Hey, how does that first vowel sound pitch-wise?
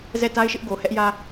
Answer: falling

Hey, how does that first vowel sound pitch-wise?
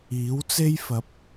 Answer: rising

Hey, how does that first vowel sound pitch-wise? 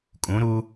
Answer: rising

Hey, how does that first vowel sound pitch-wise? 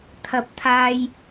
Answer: high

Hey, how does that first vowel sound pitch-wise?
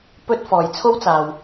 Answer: high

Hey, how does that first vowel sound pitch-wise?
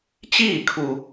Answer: falling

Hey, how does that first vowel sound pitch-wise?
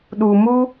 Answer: low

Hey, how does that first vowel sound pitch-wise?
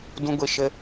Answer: high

